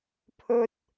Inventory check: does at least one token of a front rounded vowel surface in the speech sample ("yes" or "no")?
no